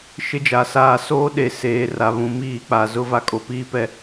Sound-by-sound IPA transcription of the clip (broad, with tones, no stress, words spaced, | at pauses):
ʃɪ˦d͡ʒa˨saː˦˨ soː˦ɗe˨ seː˨ra˨βũ˨ miː˦˨k͡pa˨ zʊ˦va˦kʼo˨ piː˦ pɛ˦